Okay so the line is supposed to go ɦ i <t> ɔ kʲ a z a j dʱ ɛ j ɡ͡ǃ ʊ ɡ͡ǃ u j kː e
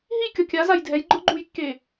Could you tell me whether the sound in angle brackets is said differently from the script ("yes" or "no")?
yes